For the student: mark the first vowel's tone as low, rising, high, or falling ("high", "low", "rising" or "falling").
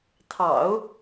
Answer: low